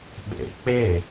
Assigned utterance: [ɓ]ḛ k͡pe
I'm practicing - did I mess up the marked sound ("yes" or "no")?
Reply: no